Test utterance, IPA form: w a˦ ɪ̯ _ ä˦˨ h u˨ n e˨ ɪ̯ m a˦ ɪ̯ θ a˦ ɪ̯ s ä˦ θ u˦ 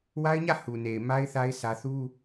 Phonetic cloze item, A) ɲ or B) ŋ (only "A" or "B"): A